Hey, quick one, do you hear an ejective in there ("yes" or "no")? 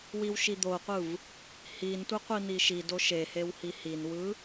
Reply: no